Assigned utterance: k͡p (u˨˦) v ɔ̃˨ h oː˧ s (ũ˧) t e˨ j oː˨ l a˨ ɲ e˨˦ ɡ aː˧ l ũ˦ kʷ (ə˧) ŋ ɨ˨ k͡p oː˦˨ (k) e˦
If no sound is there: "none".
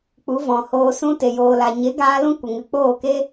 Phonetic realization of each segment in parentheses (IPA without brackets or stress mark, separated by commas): u˨˦, ũ˧, ə˨, k